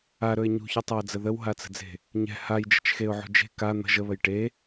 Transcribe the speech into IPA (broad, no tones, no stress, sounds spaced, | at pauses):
a ɾ ɵ ɪ̯ ɲ ṳ ç o tˤ a ə̯ d͡z ə ð ə w ɦ a t͡s ə̤ d͡z e̤ | ɲ ɛ̤ h a j d͡ʒ ə̤ t͡ʃ x e ʊ̯ ʕ ṳ d͡ʒ e̤ k a n̪ ə̤ ʒ ə β ə j ʈ e